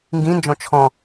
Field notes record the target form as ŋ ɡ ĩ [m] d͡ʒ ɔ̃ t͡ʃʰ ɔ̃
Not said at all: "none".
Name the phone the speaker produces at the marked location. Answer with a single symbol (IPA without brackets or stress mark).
n